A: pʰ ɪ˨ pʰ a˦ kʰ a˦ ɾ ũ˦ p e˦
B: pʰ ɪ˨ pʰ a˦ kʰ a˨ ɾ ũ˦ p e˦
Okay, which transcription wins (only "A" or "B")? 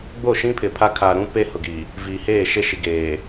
B